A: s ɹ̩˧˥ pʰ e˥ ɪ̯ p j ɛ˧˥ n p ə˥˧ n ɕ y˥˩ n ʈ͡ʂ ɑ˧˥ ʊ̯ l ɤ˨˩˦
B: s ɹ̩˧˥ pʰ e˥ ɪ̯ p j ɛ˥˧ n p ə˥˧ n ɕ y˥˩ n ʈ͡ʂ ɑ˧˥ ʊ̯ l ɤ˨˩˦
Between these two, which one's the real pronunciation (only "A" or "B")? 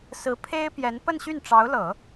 A